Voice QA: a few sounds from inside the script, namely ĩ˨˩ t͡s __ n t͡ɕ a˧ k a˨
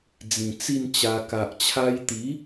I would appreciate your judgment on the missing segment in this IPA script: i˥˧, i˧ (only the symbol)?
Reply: i˥˧